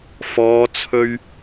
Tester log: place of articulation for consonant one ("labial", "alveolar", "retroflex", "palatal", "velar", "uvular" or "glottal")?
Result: labial